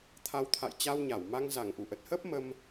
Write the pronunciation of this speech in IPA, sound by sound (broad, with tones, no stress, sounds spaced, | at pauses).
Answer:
t̪ʰ a˨˦ w t̪ʰ a̰˧˨ j t͡ɕ a˧ w ɲ a˧˩ w m a˧ ŋ z a˧˩ ŋ ʔ u˧˩ ʔ ə˨˩ t̚ h əː˦˥ p̚ m ə˧ m